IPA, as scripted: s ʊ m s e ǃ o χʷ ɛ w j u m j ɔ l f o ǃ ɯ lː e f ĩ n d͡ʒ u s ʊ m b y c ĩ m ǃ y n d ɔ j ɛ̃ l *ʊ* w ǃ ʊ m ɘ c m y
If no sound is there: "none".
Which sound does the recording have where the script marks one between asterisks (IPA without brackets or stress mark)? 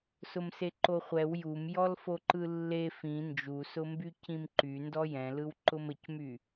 ɯ